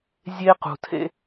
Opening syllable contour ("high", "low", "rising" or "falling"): high